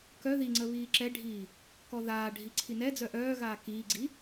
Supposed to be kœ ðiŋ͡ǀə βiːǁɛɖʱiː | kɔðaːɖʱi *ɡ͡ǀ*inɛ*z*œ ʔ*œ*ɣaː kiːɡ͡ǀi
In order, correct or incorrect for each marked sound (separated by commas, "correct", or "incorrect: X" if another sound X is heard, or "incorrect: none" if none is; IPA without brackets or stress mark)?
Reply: incorrect: ǀʰ, incorrect: d͡z, incorrect: œː